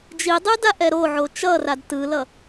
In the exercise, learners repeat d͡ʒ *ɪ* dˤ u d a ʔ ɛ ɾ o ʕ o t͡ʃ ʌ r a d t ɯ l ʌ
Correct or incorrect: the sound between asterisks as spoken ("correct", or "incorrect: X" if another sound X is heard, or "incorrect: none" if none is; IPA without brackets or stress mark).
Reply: incorrect: i